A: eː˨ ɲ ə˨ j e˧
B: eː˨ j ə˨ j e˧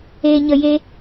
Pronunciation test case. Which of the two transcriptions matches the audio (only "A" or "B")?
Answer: A